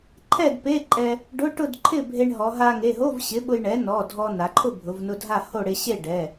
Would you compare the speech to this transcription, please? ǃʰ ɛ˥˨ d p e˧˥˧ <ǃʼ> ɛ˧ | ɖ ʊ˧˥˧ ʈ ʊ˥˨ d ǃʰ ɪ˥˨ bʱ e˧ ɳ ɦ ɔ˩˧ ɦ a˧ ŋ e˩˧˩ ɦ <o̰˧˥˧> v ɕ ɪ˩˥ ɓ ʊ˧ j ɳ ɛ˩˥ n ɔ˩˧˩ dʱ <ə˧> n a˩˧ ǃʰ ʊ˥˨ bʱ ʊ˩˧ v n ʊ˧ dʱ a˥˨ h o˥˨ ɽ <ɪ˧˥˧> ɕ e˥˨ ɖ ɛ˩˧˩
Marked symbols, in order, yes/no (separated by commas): yes, no, no, no